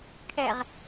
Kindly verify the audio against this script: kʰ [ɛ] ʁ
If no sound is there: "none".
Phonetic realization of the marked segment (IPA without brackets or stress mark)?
ɛ